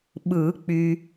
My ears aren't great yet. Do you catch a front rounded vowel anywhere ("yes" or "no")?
yes